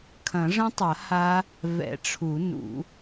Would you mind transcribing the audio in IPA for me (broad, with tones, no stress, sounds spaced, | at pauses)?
kʰ ɐ̃˨˩˦ ʐ ə̃˦˥ tˤ ɐ˨˩˦ h a˦˥ | v ɛ̰˨˩˦ ʈ͡ʂʰ u˨˩˦ n ṵ˨˩˦